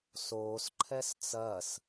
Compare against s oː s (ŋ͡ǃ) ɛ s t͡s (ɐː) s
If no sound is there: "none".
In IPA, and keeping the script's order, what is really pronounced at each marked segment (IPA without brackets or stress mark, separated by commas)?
ǃʰ, ɐː